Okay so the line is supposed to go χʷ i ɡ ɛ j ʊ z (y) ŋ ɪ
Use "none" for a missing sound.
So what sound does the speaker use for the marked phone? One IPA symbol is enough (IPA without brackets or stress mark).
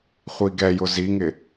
i